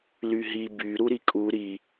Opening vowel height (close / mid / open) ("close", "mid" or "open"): close